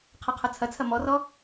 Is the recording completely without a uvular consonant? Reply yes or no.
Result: no